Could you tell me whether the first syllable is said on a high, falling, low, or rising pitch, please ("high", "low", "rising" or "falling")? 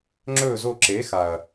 falling